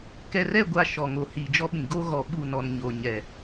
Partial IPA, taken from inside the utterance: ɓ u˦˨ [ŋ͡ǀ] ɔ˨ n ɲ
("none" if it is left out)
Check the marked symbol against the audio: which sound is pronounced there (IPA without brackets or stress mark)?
n